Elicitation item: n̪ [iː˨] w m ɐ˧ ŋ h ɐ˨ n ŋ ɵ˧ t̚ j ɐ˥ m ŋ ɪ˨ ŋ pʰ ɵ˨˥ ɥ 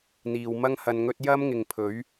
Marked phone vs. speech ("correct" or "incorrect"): correct